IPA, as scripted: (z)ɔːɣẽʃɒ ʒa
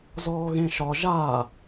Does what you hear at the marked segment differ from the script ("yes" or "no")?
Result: no